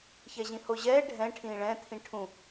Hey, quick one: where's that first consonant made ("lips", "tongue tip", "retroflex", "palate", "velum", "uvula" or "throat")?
palate